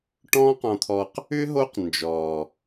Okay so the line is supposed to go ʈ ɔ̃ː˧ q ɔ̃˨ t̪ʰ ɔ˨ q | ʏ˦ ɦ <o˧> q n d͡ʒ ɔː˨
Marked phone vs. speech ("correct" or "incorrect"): incorrect